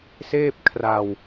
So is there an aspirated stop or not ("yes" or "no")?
yes